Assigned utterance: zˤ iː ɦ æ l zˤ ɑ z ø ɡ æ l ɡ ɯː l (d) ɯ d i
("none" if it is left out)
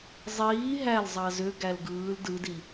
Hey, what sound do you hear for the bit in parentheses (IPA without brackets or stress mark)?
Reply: d